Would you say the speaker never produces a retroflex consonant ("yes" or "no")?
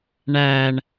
no